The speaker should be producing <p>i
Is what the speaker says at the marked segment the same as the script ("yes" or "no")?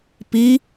yes